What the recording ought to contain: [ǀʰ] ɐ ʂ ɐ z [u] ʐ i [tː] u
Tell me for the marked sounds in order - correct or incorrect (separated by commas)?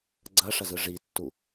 incorrect, incorrect, correct